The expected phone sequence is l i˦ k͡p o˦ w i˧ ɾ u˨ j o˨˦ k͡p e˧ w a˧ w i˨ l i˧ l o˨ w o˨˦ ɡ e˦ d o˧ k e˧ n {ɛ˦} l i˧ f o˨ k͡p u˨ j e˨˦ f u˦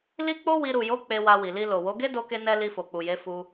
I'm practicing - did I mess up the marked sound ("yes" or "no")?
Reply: no